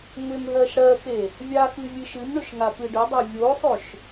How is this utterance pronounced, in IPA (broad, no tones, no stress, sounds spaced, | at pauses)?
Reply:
ŋ ʏ m ɦ ɜ ʃ ɽ ɜ x e | vʲ a x ɨ vʲ ɨ ʃ ɨ m ɳ ʏ ʃ ŋ a p ɨ ɖ ʏ dˤ ɜ vʲ o sˤ ʏ ʃ